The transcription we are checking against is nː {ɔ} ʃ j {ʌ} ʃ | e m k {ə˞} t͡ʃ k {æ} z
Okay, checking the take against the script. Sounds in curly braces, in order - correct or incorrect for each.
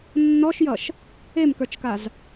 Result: correct, correct, correct, incorrect

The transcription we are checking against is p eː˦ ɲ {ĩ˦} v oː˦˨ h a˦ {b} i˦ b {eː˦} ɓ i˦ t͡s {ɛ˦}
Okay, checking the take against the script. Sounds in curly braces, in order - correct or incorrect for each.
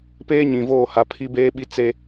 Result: incorrect, incorrect, correct, incorrect

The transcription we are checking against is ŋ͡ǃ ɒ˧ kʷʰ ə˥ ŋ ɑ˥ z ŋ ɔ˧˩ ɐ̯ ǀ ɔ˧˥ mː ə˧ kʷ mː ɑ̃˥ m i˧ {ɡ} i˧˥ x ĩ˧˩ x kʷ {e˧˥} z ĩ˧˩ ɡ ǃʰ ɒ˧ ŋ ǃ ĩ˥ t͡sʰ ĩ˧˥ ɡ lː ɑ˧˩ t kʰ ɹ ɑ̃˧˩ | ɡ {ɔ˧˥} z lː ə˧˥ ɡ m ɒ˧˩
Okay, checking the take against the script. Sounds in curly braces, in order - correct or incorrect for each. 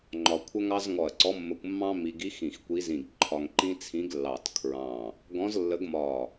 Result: correct, incorrect, incorrect

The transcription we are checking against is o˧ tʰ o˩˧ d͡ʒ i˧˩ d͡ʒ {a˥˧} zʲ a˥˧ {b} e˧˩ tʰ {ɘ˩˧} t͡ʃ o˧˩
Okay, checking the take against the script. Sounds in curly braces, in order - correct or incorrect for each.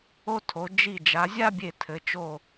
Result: incorrect, incorrect, correct

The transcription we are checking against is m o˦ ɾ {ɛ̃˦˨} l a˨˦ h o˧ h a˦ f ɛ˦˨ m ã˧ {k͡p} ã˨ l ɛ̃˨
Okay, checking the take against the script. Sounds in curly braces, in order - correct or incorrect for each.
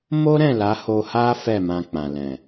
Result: correct, correct

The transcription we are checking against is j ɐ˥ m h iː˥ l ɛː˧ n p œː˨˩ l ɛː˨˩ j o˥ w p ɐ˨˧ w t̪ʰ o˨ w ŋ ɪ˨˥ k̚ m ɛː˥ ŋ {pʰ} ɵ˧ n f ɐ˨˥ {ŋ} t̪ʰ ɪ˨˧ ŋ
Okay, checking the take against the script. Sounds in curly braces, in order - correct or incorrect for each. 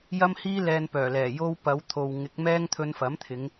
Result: incorrect, incorrect

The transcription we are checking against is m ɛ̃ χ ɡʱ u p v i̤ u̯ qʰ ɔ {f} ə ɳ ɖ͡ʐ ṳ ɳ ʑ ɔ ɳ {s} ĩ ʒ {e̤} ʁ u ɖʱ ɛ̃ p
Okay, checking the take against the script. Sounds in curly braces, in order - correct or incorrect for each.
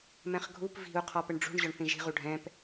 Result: incorrect, incorrect, incorrect

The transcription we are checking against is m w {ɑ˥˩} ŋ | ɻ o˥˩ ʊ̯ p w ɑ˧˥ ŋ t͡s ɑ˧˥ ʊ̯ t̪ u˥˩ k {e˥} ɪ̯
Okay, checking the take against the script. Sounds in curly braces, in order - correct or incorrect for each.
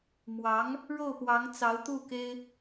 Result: incorrect, correct

